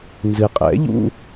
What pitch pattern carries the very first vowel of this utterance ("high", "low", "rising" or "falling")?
low